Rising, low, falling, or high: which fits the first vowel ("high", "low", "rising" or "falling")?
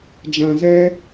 low